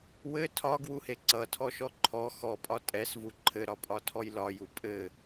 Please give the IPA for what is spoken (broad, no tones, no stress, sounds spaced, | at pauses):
w ɘ tʰ ɒ ɡ w u h e ǀ ʌ tʰ ɔ ʃ ɔ ǃʰ ɔ x ɔ pʼ ɒ tʼ ɛ s v u ǃʰ ɘ ɾ ɒ pʼ ɒ tʰ ɔ j l ɒ j u pʼ ɘ